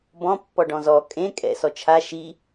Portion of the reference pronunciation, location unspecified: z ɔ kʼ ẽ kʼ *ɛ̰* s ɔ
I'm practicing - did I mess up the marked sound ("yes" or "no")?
no